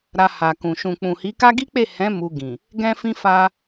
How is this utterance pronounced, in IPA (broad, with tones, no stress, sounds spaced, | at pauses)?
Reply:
ɾ a˧ h a˨ k ũ˨ ʃ ũ˨ k͡p ũ˨ h i˨˦ k a˦ ɡ i˦ k͡p e˦˨ h ɛ̃˨˦ m u˧ ɡ ĩ˨ | ɡ ɛ̃˦ f ĩ˦ f a˦